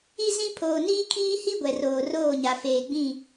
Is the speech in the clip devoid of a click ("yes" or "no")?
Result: yes